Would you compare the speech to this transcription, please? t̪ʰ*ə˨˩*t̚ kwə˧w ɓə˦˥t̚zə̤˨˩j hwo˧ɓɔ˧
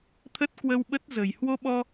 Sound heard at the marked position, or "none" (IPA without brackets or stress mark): ə˦˥